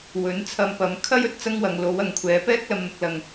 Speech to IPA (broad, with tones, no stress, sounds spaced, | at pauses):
w ɵ˨˥ n t͡sʰ ɐ˧ m p ɐ˨˥ m kʰ ɐ˥ j ɵ˨˥ t̚ t͡s ɐ˥ ŋ w ɐ˨˧ ŋ l o˨˥ w ɐ˨˧ ŋ kʷʰ ɛː˨˥ p ɛː˥ k̚ l ɐ˨ m n̪ ʊ˨ k̚ l ɐ˨ ŋ